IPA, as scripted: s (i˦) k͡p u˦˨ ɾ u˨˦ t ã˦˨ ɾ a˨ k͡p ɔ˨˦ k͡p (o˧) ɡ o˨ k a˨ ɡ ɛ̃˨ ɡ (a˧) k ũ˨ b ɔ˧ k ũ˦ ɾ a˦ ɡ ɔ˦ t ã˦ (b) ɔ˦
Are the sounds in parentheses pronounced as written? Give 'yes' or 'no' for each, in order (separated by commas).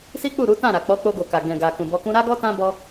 yes, yes, no, yes